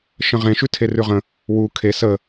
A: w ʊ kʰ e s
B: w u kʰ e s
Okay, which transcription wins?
B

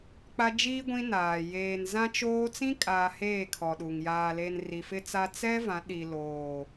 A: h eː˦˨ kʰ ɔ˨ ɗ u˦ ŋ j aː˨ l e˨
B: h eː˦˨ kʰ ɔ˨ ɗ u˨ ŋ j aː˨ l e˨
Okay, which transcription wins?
B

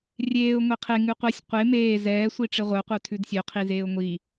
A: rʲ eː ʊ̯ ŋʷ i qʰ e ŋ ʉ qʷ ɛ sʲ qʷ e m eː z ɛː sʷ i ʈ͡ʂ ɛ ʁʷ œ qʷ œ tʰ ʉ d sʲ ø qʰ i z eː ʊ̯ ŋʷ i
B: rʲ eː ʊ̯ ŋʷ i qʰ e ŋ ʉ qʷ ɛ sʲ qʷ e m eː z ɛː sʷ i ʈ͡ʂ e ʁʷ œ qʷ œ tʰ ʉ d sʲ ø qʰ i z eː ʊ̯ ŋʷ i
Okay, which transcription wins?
B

